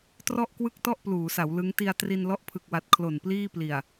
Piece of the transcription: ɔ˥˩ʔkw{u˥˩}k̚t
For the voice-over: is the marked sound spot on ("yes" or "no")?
no